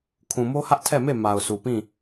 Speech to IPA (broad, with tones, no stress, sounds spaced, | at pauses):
kʰ ũ˨ m o˦ h ä˦ ʔ tʰ ɛ˦˨ m e˦˨ m a˨ ʊ̯ s u˨ p ĩ˦˨